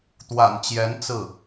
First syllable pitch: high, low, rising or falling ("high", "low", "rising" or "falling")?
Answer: low